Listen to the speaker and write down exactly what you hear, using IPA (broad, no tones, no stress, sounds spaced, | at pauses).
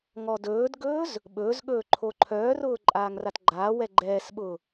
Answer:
ŋ ɔ d ɵː d ɡ ɵː z | ɓ ɵː z ɠ ɵː ǃʰ o ǃʰ œː r ʊː ǃʼ aː ŋ r a t ɡ͡ǃ aː w ɛ ɡ͡ǃ ɛː s ɓ ʊː